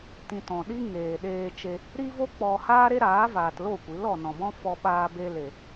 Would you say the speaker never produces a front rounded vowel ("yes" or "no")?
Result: yes